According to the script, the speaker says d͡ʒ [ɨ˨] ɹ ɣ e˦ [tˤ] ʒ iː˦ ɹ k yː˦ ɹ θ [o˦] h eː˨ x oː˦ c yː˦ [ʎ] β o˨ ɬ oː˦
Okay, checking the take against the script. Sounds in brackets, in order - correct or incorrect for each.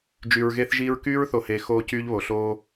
incorrect: y˨, incorrect: θ, incorrect: o˨, correct

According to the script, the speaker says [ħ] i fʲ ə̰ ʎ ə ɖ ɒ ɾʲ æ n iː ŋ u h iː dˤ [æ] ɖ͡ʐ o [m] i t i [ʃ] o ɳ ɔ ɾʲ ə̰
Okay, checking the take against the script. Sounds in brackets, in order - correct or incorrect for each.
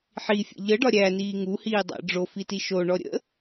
correct, incorrect: æ̰, incorrect: f, correct

